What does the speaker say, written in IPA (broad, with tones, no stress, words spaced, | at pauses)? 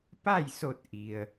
pa˥˨jso˧˩t̚ ʔi˩ə̯